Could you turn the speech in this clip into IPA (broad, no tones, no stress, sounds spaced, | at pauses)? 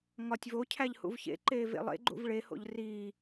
ŋ ɒ tʲ v o cʰ æ ʎ h ṵ v ç ḛ ǃ eː v ḛ lˠ ḛ ɡ͡ǃ ṵ v ɭ e h o̰ ʎ r iː